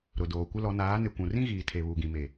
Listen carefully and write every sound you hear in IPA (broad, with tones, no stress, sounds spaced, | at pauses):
ɾ ʊ˨ d oː˨ kʷ ɪ˦ l ɔ˨˦ n aː˨˦ n ɪ˨ kʷ ũ˨ r ĩ˦ ɣ iː˨ tʰ e˨ β u˨ ɡ ĩ˨ m e˨